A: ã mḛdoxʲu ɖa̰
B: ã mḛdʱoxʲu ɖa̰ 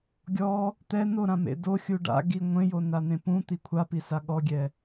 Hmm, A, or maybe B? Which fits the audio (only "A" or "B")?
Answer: A